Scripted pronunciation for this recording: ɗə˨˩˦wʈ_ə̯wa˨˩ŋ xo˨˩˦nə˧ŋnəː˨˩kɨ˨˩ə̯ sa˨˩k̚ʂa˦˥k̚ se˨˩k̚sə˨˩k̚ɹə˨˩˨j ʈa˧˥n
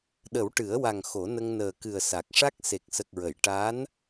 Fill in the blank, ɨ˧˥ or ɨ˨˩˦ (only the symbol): ɨ˨˩˦